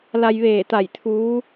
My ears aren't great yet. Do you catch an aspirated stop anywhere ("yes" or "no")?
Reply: yes